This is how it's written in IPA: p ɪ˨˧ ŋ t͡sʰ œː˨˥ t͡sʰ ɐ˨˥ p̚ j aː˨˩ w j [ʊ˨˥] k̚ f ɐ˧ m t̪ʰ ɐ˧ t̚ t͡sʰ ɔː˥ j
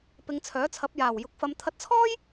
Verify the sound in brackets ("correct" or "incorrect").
correct